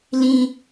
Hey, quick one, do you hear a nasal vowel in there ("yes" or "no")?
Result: yes